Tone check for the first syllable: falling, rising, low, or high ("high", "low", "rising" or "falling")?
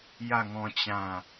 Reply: falling